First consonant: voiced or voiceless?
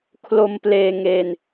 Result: voiceless